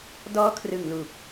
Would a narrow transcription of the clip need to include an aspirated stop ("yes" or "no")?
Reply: yes